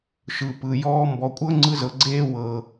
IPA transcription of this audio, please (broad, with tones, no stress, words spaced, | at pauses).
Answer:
ʃɯ˩pɯ˩ jɔː˥mbɔ˧ kʷʼɤ˥ ŋ͡ǀɯ˥zɤ˧ɡ͡ǀeː˥ wɤ˧